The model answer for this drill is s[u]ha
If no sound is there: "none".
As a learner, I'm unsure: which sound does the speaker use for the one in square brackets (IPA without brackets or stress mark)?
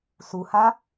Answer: u